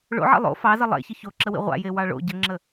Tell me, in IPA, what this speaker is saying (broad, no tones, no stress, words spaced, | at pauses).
ɭo̰ʕḛ lˠo̰ fɑzə lˠḛçə çoǁəwḭ ʁʷa̰je wɑɭo̰ ɟəŋ͡ǁə